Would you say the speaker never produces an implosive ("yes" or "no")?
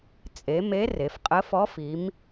yes